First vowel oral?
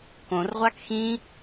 no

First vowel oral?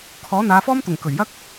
yes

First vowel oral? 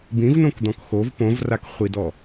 no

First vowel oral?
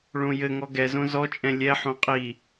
no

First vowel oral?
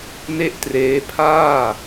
yes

